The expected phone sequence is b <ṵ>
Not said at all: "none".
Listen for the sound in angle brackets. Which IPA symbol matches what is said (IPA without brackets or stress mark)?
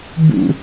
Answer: ṵ